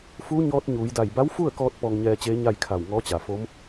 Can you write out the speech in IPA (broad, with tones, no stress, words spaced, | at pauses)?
fuː˧˥ ɲɔː˧˥t̚ɲuː˩˧jda˧˩j ba˧˥wfu˥˨ə̯kɔː˧t̚ pɔː˧ŋɲɛː˧t͡ɕeː˧˥ ɲa˥˨jkʰa˧˩wŋɔː˧˥t͡ɕa˩ fo˧˥m